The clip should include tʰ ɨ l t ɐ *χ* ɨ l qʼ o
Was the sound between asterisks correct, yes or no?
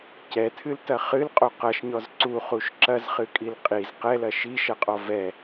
yes